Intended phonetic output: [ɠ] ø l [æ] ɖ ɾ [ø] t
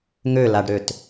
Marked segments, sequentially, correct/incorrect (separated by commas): incorrect, incorrect, correct